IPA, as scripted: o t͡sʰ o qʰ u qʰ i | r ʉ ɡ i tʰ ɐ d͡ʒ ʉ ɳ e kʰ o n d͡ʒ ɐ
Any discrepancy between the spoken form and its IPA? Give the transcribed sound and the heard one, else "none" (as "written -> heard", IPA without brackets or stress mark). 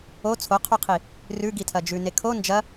ɳ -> n